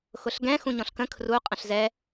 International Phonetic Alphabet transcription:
x ʊ ɬ ɡ ɛ̃ x ũ ɲ ɔ̃ ɬ k ə̃ kʰ r u qʼ ə̃ ɬ z ɛ

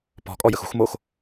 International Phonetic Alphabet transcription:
p ɔ̤ kʼ ɔ j ə x ṳ x m o x

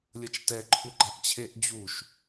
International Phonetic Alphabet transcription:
lʲ ʌ t͡ʃ t ɛ ǃʰ u ɡ͡ǃ a ʔ t͡ɕʰ e ʔ d͡ʑ u ʃ

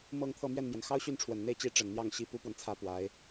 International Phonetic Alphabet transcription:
m ɤ˥˧ ŋ t̪ʰ ɤ˥˧ m ɥ ɛ˥˩ n m j ɛ˩ n x ɑ˥ ʊ̯ ɕ y˥˩ n ʈ͡ʂʰ w ə˨˩ n n̪ e˥˩ ɪ̯ t͡ɕ i˧˥ ʈ͡ʂ ə˨˩ n n̪ j ɑ˥˩ ŋ ɕ i˥ p u˥ p w ə˨ n t͡sʰ ä˥ p w a˧˥ ɪ̯

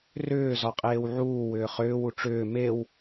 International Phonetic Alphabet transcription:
r ʏː z ɒ qʼ eː w ʕ uː w ʏː χ ʏː w u ʈ͡ʂ ʏː m e w

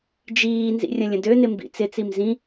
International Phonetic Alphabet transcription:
d͡ʒ iː n z ḭ rʲ ə̃ lʲ ə̃ d ø n ɪ m b ḭ t͡s ɪ t͡s i m z ĩ

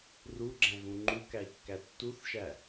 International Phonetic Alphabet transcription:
r u ɡ͡ǁ æ̃ ɣ ũ ŋ͡ǃ u k æ i̯ kː æ tː u θ ʃ æ

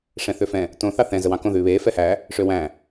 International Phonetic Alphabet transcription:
ʂ ɛ̃ θ ø f ɛ̃ | t õ θ ɑ θ ɛ̃ z ə w ɑ̃ k õ ð ʉː β eː f ɛ h æ | ʂ ø w æ̃

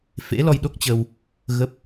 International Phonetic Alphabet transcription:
f ḛ˧˥ l ɔ˧ j ɗ o˦˥ k̚ t͡ɕ ə˧ w | ɣ ə˦˥ p̚

